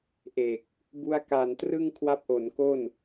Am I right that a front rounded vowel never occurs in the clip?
yes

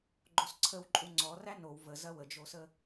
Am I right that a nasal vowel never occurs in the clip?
yes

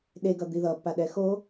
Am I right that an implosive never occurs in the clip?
no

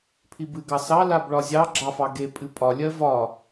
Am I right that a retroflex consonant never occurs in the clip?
no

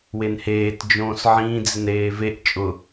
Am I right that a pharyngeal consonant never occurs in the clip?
no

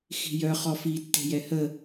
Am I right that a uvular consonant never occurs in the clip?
no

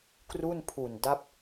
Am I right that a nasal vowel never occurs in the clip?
yes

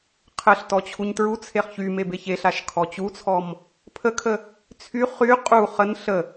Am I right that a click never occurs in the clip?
yes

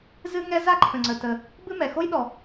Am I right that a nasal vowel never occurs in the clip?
no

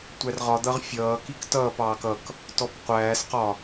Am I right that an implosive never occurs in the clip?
yes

